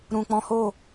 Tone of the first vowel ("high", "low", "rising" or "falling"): low